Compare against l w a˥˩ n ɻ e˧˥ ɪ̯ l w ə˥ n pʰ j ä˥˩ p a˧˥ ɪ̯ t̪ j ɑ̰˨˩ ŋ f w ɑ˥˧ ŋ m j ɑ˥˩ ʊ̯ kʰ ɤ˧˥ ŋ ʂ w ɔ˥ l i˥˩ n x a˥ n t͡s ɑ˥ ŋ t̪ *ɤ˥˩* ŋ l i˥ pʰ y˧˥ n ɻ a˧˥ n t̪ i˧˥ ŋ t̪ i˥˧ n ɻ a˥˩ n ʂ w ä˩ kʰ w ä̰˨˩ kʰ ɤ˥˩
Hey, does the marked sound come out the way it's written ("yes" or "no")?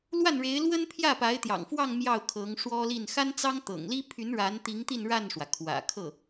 no